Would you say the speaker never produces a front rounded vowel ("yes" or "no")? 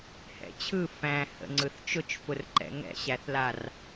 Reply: yes